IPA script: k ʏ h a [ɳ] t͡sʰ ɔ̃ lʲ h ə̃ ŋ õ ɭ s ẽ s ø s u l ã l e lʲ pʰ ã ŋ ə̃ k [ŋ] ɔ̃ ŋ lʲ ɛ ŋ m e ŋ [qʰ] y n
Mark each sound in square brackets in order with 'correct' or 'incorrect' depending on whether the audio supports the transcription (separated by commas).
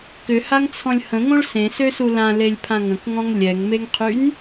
incorrect, correct, correct